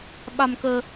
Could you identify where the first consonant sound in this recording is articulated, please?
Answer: labial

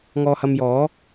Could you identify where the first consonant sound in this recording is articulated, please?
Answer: velar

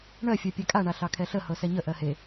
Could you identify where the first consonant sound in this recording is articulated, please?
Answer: retroflex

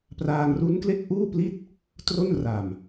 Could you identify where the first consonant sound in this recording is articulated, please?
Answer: labial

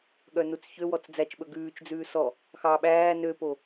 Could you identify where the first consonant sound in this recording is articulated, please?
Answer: velar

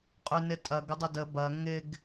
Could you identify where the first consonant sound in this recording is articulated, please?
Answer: uvular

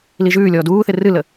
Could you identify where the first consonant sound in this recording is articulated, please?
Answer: alveolar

